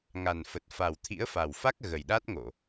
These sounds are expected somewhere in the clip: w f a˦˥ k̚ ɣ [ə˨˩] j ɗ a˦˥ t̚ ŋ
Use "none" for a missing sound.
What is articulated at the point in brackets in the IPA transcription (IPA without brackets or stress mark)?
ə˨˩